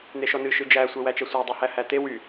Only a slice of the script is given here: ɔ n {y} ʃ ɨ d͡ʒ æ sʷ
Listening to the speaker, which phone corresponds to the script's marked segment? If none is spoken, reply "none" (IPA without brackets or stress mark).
ɨ